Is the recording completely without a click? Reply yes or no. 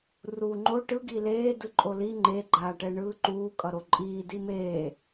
no